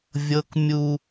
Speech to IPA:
vʲ ɤ˦ k mʲ u˦

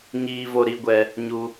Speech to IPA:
ɲ iː˦ v o˦ ɾ i˨˦ ɡʷ ɛ˦ | ɲ u˦

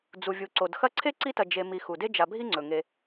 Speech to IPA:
d͡z u˩ vʲ u˩ ǀ o˩ d x ɐ˦ ǀʰ e˥ ǀ i˦ t ɐ˨ d͡ʒ e˨ m i˨ x u˩ d e˥ d͡ʒ a˨ bʱ i˥ ŋ͡ǀ ɵ˩ ŋ e˨

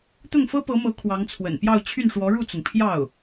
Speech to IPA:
t̪ ʊ˥˩ ŋ f ɤ˥ p ɤ˧˥ m ɤ˧˥ kʰ w ɑ˧˥ ŋ t͡sʰ w ə̰˨˩ n p j ɑ˥˧ ʊ̯ t͡ɕʰ y˥˩ n ʂ w ɔ˧˥ ɻ u˥˩ t͡s ʊ˩ ŋ pʰ j ɑ˥˩ ʊ̯

